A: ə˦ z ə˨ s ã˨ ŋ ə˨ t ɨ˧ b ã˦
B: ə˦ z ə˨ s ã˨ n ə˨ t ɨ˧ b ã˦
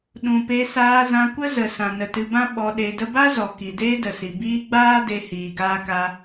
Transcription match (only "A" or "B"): B